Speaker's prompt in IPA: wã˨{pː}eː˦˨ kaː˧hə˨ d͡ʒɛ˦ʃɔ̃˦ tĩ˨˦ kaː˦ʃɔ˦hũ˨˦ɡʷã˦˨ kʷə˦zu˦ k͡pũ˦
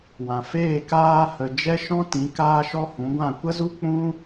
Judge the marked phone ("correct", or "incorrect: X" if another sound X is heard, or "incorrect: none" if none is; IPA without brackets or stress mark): incorrect: f